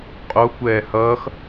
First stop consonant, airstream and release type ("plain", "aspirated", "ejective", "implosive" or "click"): ejective